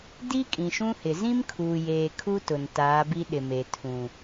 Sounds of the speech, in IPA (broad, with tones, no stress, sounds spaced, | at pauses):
d i˦ kʼ ĩ˨ ʃ ũ˦ h ɪ˨ z ĩ˦ m kʰ uː˨ j eː˨ kʰ u˦ t ʊ˨ n t aː˨˦ b i˦ ɗ ɪ˨ m e˨ tʰ ũ˨